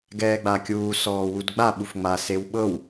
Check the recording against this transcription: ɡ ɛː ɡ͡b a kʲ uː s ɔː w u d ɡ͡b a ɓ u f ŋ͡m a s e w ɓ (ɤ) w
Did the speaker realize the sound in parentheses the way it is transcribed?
yes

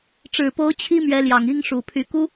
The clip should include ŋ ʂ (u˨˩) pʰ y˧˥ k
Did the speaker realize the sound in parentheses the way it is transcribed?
yes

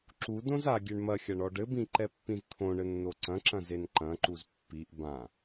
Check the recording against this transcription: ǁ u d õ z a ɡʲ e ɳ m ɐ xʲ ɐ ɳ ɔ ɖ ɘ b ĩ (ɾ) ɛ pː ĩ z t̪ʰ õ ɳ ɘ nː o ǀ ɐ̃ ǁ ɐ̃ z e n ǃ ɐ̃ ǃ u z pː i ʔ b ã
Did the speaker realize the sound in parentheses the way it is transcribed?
no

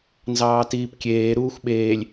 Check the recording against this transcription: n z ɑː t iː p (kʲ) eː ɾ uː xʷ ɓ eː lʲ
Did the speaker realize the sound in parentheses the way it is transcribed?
yes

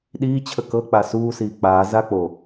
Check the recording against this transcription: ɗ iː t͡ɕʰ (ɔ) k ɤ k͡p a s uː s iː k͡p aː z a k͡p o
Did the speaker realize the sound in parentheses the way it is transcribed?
no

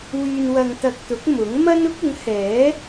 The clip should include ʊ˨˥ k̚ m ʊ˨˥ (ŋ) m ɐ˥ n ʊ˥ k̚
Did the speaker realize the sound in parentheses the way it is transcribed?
yes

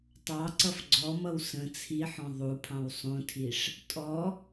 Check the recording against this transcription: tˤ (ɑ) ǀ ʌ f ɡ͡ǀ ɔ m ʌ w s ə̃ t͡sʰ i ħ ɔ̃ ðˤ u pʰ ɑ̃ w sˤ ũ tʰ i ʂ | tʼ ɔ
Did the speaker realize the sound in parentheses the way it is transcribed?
yes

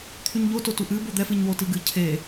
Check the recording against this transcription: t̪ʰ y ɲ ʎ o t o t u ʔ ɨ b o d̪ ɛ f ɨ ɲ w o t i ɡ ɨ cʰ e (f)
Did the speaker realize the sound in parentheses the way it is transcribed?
no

